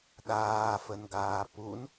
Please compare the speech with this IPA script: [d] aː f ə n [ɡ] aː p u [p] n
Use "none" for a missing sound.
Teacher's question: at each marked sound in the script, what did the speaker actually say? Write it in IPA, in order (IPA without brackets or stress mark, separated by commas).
ɗ, ɡ, none